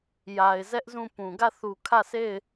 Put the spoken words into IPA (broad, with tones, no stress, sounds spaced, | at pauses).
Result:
j a˨ ɪ̯ z ɛ˦ ʔ z ũ˦˨ p ũ˨ ɡ ä˦˨ θ u˨ kʰ ä˦˨ sʰ e˦˨ ɪ̯